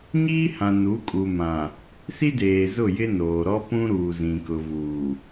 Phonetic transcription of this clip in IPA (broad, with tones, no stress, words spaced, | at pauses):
ɲiː˦hã˨nu˨˦kʼu˨ mã˨ | si˦deː˨zʊ˦˨jɪ˦ noː˨ɾɔ˦pũ˦ ɾuː˨zĩ˨kʊ˨vuː˨